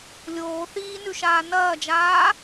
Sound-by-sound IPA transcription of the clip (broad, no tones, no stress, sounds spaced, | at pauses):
lʲ oː θ iː n ʉ ʃ aː n ɐː d͡ʒ aː